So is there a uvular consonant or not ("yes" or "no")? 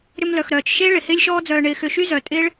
no